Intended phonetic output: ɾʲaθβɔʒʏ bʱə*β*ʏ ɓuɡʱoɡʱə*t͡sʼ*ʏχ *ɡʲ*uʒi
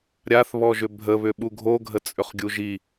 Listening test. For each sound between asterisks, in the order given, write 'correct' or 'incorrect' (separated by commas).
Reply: correct, correct, correct